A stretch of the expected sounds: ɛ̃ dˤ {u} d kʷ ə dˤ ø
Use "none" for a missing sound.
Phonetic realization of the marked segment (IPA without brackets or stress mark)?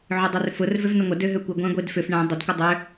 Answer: ʏ